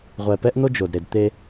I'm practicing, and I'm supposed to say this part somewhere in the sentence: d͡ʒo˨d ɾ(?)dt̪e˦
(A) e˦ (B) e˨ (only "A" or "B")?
B